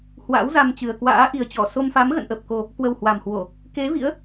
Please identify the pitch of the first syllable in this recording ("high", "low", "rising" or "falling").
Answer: rising